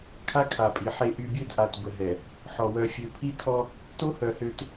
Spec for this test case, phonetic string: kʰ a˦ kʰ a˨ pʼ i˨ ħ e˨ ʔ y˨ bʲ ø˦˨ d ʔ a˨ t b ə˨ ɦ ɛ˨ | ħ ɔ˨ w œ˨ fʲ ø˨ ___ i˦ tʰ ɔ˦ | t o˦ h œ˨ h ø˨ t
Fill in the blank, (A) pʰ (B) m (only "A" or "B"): A